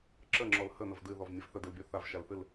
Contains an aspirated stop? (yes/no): no